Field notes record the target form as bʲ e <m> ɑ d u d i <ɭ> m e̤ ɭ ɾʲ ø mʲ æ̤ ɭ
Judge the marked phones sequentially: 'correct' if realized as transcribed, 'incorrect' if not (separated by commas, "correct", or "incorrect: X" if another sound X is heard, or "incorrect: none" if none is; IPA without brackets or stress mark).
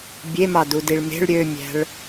correct, correct